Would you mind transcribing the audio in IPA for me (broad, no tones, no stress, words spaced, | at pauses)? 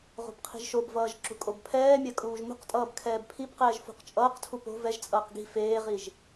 ʁo̤bqʰi̤ʒʃobvʌːʒ ǁṳkʼobpʰɛːmʲa kʼuːʒmṳqtʼʌːb kʰɛːbpʰibqɛːʒ fṳqt͡ʃʼʌːqtʰu po̤ vɛʒt͡sʼʌːq ɡi̤ feːʁiʒ